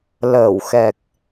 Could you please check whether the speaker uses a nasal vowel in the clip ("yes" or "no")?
no